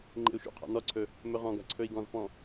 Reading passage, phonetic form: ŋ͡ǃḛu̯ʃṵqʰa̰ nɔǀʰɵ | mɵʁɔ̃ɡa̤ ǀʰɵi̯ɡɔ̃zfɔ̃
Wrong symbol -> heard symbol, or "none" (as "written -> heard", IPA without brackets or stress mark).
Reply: none